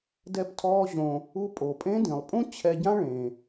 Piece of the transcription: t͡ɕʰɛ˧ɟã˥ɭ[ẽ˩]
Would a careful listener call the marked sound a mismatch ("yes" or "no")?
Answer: no